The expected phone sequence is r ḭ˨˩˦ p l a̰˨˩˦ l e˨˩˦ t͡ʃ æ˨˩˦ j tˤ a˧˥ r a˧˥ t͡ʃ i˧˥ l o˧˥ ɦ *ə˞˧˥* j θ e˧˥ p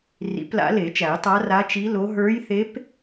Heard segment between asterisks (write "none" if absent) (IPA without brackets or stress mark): ə˞˧˥